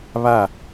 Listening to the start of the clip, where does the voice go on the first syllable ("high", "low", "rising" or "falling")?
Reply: falling